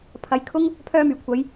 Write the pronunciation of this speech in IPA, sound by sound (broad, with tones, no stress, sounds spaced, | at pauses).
pʰ ɐ˨˥ j kʰ ʊ˥ ŋ | pʰ œː˥ m yː˨˩ kʷʰ ɐ˨˥ j